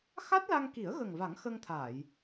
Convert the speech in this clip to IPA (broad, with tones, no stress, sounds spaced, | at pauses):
x a˦˥ t̚ l a˧ ŋ k i˨˩˦ ə̯ ɣ ə˨˩ ŋ v a˨˩˦ ŋ x ə˧ ŋ t̪ʰ aː˨˩˨ j